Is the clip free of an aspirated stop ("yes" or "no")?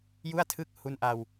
no